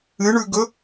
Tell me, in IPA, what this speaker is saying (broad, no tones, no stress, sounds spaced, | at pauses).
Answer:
ɨ ɳ ʉ ɡ ɵ